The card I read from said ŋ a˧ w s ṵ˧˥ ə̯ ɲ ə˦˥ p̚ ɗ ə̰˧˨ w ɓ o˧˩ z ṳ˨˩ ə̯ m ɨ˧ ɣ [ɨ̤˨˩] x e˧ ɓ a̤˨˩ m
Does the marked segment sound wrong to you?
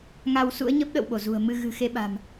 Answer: no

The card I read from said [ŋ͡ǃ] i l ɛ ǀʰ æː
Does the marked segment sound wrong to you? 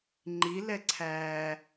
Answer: no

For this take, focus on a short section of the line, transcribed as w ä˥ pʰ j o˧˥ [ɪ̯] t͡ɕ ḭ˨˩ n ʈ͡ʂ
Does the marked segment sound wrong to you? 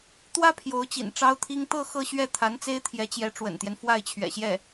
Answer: yes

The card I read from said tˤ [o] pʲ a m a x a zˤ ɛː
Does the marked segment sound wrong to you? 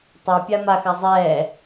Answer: no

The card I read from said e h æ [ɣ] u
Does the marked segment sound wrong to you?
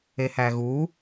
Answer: no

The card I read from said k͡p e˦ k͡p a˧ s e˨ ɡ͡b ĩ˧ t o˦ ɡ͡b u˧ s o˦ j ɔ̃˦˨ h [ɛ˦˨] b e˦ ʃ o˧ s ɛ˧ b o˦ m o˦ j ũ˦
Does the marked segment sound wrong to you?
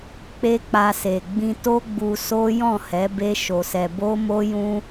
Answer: yes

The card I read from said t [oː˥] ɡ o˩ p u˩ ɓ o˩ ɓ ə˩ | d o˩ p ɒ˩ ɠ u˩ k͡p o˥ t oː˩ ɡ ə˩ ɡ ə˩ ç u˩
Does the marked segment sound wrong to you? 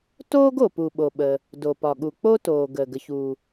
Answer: no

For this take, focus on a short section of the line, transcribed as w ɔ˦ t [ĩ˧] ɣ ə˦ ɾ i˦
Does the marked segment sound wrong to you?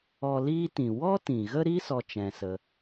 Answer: yes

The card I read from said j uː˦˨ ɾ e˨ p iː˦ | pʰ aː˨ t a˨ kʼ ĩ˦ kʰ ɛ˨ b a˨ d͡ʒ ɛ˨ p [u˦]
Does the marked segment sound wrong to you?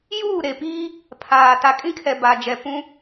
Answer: yes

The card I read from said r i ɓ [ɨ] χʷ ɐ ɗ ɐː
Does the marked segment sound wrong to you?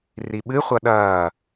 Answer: no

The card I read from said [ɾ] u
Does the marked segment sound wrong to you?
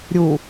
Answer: yes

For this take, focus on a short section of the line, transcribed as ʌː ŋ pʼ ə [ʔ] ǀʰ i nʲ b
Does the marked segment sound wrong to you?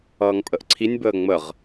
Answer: no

